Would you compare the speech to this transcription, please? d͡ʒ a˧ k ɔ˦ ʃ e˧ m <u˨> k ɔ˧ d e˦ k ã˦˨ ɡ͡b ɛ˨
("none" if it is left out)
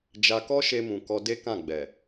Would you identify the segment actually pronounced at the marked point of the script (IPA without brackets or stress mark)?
ũ˨